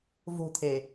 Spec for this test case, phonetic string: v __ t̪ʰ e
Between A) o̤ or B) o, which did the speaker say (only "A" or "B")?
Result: A